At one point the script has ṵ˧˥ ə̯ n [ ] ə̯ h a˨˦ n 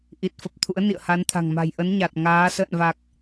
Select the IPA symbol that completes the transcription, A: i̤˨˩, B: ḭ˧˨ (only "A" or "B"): B